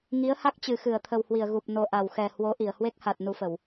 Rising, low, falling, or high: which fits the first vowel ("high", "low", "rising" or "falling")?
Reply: rising